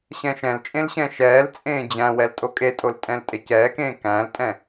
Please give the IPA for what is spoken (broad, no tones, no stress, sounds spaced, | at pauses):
ɕ ɛ̃ ʃ ɛ̃ l t͡ʃʼ ẽ l ɕ ɛ̃ ʃ ɛː l t͡sʼ ẽː d͡ʑ æ̃ w ɛ l tʼ o kʼ e tʼ o l tʼ ɛ̃ l tʼ e c ɛː k ẽː k æ̃ l tʼ ɛ̃